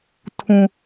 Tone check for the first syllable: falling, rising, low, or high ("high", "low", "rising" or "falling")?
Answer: low